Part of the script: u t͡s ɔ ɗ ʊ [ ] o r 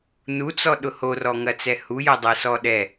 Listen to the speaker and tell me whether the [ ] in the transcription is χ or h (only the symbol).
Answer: h